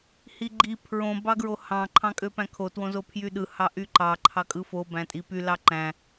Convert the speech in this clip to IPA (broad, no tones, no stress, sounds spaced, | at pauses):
h i ɡ͡ǃ i pʰ ɹ õ b ɑ ɡ ɹ o h ɑ̃ ǃʰ ɑ̃ kʼ ø p æ̃ kʰ o t w õ z o pʰ j y ɗ ɯ h ɑ ʔ y ǃ ɑ ǃʰ ɑ kʼ ɯ f o b æ̃ tʼ i p y l ɑ ǃ æ̃